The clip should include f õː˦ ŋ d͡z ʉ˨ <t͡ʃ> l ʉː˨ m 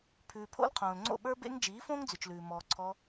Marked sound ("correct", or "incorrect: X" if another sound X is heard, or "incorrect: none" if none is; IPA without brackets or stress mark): correct